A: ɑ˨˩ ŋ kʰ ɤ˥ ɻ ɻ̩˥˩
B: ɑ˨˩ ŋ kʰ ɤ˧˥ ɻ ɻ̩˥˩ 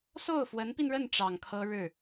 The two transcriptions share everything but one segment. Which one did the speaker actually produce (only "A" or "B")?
A